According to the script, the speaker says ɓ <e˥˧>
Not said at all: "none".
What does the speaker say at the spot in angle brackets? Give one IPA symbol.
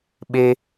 e˧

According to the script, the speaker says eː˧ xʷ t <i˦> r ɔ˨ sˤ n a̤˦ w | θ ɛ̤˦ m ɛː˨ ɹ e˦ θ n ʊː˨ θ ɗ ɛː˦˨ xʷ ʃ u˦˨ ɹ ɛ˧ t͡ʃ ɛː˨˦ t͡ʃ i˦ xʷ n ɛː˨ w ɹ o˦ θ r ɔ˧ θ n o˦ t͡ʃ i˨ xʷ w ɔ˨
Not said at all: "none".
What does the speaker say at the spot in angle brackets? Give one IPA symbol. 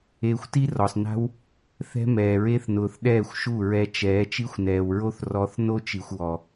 i˦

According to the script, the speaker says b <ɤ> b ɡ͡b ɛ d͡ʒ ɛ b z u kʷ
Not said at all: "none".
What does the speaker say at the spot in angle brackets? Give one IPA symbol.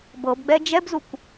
ɤ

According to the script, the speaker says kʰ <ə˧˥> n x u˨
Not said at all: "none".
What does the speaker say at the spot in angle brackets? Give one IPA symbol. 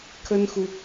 ə˥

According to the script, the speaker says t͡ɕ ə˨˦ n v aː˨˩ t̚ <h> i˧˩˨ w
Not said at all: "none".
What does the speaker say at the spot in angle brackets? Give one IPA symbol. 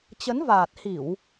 h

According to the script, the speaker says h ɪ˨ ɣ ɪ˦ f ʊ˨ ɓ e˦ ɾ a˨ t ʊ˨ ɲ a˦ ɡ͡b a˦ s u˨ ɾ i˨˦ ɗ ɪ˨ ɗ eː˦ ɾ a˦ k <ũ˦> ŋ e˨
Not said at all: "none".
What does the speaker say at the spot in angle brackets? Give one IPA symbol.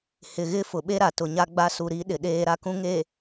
ũ˦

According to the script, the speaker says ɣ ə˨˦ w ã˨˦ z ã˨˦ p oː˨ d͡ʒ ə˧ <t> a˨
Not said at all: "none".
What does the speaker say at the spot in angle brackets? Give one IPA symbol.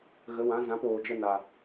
n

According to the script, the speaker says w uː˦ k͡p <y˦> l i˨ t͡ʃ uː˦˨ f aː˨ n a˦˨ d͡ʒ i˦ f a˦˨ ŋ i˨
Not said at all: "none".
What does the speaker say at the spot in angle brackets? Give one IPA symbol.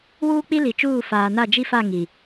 i˦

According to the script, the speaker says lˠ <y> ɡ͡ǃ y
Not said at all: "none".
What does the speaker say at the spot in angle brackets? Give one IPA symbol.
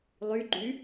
y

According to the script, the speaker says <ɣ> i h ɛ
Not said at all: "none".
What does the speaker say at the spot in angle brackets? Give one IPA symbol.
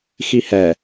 x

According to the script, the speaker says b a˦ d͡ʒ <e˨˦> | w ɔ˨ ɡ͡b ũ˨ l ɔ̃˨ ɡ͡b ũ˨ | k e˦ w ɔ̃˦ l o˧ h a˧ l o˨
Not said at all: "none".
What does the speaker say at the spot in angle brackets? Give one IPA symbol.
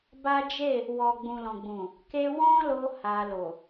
e˦˨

